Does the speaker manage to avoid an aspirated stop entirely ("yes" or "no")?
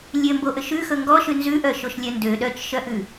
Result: yes